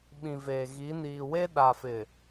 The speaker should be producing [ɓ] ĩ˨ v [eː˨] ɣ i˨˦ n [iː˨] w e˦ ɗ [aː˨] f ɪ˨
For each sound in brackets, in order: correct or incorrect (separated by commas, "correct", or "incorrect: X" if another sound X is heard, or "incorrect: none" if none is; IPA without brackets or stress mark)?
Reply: correct, correct, correct, incorrect: a˨